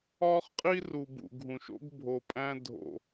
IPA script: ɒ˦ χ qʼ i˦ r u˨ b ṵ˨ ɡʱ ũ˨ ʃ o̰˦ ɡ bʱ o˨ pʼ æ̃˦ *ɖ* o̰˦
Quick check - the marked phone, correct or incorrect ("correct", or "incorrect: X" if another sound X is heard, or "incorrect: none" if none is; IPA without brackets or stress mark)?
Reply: incorrect: dʱ